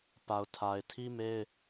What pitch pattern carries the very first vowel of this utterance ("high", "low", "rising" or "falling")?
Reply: low